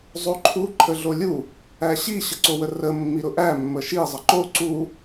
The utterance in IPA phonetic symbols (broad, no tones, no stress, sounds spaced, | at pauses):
zˤ o ǃʰ u ǃʰ ə ɮ o lʲ u | æ ɕ i ɕ ə ǀ o w ə r ə mː i ɾ ʊ ʔ æ mː ə ʃ i zˤ ə ǃ o ǀ u